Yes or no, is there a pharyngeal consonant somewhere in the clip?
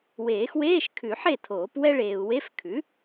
yes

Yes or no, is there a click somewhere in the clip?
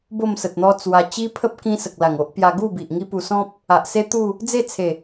no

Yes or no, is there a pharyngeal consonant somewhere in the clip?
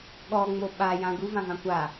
no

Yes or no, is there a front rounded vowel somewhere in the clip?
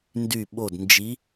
yes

